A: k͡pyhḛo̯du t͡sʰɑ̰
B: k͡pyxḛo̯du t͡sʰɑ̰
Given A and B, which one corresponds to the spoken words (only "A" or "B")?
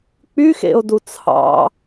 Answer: B